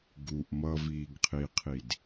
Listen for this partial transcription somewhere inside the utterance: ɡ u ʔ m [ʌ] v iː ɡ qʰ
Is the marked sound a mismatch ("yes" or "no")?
no